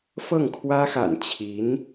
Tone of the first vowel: falling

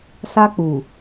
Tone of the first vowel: high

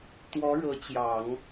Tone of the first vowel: rising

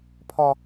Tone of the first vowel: high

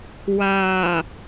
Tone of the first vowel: low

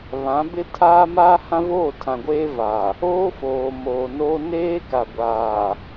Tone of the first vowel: rising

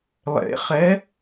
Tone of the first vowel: rising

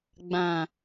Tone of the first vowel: low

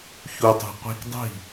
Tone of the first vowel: low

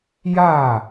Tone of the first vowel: falling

